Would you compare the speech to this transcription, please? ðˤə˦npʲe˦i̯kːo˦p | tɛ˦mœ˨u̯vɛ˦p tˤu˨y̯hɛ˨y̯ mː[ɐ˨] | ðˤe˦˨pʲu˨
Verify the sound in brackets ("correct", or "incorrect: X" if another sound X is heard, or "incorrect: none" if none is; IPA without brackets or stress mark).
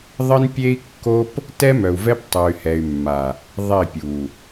incorrect: a˨